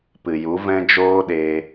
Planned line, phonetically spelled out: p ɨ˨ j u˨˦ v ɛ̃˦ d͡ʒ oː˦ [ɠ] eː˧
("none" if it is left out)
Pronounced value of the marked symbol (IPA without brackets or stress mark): ɗ